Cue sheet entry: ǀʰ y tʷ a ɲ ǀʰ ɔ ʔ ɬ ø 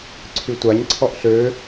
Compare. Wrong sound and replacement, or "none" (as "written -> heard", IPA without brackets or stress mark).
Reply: none